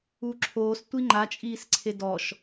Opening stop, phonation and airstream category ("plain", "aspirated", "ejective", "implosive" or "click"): click